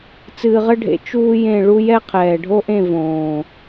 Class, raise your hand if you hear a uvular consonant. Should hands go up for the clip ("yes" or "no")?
yes